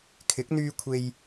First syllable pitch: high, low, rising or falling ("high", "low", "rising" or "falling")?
rising